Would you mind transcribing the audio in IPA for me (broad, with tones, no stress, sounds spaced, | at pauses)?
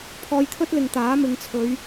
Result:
pʰ ɔː˧ j t̪ʰ ɵ˥ t̚ l ɪ˨ ŋ t̪ aː˨˥ m ɪ˨˧ ŋ t͡sʰ ɵ˨˧ ɥ